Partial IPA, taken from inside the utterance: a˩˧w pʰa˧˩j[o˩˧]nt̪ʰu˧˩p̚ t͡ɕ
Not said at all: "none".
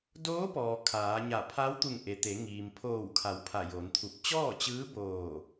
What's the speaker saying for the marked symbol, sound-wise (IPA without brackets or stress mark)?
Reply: o˩˧